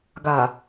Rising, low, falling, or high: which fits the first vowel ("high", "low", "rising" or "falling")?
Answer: low